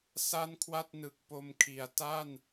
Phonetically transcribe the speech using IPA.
s a˥˩ n kʰ w a˥˩ t̚ n ɯ˨˩ k̚ p o˧ m kʰ i˩˦ a̯ t a˥˩ n

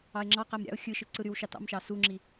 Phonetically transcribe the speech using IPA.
ɑ ɪ̯ ŋ͡ǁ ɑ q æ m ɾʲ ɑ̰ ʊ̯ xʲ ɯ ʃ ɯ ǀ ɯ ɾ y w ʃ ɑ t ɑ̰ m ʃ ɑ s u ŋ͡ǁ i

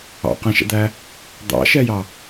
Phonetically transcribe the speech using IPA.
ɑ̰ q æ̃ ʃ ɛ̰ d̪ æ | d̪ ɑ̰ ʃ ɛ j ɑ

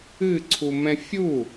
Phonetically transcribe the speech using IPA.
ɨ ǀʰ u m ɛ̃ fʲ u

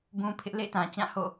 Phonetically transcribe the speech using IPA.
b ũ˦ pʰ ɪ˦ ʔ l ḛ˦˨ ɪ̯ t ã˨ t͡ɕ ã˦˨ h o̰˦˨

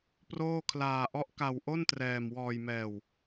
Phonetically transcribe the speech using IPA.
p r oː˥˩ kʰ l aː˧ ʔ ɔ˦˥ ʔ k a˧ w ʔ o˥˩ n t r ɛː˧ m w ɔː˧ j m ɛː˧ w

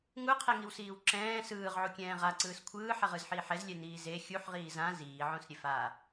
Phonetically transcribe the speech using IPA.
ŋ u qʰ ɛ ŋ i w s iː w ǁ ɛ̃ː s ɯː ʁ ʕ u kʲ ɛ̃ː ʁ a ǀ ɯː s kʷʰ ɯː ħ ɛ ʁ ɯ z ħ iː ħ ɛ z lʲ ɛ n iː z e xʲ u ħ ʁ iː z ã z iː ʕ õ s ɾʲ e f a

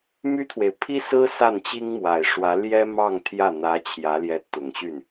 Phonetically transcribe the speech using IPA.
m y˥ t̪ʰ w e˨ ɪ̯ pʰ i˥ s ɹ̩˥ s a˥˩ n t͡ɕ i˥ ŋ m w a˨˩ ɪ̯ ʂ w ä˧˥ l j ɛ˥ m ɑ˥˧ ŋ t̪ʰ j ä˥˩ n̪ ä˧˥ t͡ɕʰ j ä˧˥ l j ɛ˧˥ t̪ ʊ˨˩ ŋ ɕ y˥˩ n

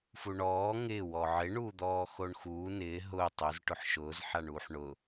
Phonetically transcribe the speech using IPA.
f u ɳ ɔː ŋ ɪː w ɔ ʕ ɪ ɳ uː d̪ ɔː x o ɳ x uː n ɪː ɦ ʊ tˤ ʊ z ʈ ʊ ħ ʃ ʊː z ħ a ɳ uː ħ ɳ ʊ

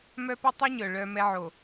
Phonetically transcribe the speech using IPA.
m œ˦ p ɵ˦ tˤ y˦ ɲ œ˨ ɭ œ˦ m ɛ˦ ʕ o˨

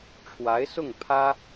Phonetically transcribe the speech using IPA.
ʈ͡ʂʰ w a˧˥ ɪ̯ s ʊ˥˩ ŋ pʰ ä˥

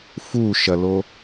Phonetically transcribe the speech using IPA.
f u ʃ ɐ l o

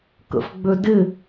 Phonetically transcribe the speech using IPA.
k ə̰ f ɡ͡b ø d ɪ

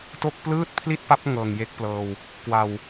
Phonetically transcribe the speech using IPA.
t o˥˩ k̚ p l ɯː˥˩ t̚ pʰ l i˥˩ t̚ p a˦˥ p̚ ŋ ɤː˨˩ ŋ j e˥˩ k̚ p l ɤː˨˩ w | k w a˨˩ w

